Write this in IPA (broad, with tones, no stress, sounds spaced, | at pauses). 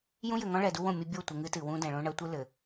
j ũ˦ j ɘ˨ ŋ ɔ̃˦ ɭ ɛ˨ d u˦ w õ˦˨ mʲ ɘ˦ bʲ o˦˨ tʷ ɛ˨ ŋ ɨ˦ t ɨ˨ w ũ˦ d ɛ̃˨ ɭ õ˦ ɳ ɐ˦ tʷ ɘ˦ l ɘ˨